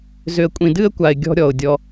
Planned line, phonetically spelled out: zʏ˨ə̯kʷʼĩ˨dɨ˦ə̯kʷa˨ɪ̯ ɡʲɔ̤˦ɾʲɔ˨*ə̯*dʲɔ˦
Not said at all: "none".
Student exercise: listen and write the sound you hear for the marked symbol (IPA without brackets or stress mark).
ʊ̯